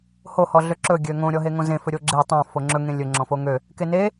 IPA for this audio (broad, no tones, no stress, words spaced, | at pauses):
ho hɔɮøǁɵ ɡʲøŋõ ɾʲɔɦeŋõzẽ fɵɾʲoɡ͡ǁe tˤõ foŋ͡ǁɵ ŋẽlʲɵ ŋ͡ǁɔ̃foŋø | kene